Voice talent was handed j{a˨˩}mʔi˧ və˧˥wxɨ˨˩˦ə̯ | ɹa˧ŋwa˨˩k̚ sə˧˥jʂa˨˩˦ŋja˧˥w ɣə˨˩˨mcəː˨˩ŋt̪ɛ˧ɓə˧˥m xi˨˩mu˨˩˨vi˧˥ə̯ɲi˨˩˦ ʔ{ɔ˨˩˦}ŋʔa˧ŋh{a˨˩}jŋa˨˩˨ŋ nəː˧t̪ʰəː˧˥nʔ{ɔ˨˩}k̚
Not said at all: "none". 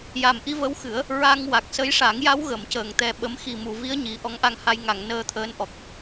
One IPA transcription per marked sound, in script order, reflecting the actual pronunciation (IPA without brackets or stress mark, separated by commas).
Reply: a˨˩, ɔ˧˥, a˧, ɔ˨˩